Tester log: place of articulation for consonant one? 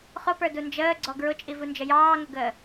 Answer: uvular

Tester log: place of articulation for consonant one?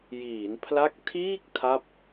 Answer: palatal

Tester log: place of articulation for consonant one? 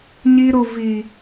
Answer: palatal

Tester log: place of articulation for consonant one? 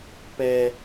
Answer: labial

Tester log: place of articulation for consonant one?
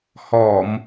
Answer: glottal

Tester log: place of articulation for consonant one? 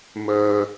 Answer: labial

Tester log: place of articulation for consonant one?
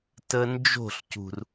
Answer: alveolar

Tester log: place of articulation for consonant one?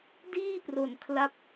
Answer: alveolar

